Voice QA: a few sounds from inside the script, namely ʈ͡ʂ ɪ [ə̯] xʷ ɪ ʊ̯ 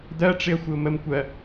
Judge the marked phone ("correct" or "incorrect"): correct